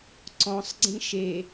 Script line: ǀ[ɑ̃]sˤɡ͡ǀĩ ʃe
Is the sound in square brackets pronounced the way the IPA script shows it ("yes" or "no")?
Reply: no